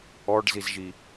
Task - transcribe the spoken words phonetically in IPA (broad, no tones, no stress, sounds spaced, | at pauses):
ɔ ɖ z i z ʒ i